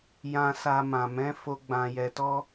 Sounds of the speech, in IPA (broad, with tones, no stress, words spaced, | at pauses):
jã˧sa˧ mã˨mɛ̃˨˦fo˧ ɡ͡bã˧jɛ˧tɔ˦